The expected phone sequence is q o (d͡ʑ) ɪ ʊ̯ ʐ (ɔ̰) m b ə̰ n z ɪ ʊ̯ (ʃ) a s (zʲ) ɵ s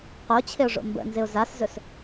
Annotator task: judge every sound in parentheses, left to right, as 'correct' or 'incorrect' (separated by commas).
incorrect, incorrect, incorrect, incorrect